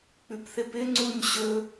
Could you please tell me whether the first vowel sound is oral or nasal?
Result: oral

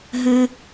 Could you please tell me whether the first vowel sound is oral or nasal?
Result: nasal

